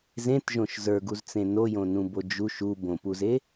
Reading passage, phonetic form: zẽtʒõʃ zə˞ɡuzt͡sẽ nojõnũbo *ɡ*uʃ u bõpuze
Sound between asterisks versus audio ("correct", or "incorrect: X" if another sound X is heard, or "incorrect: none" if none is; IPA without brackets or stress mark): incorrect: d͡ʒ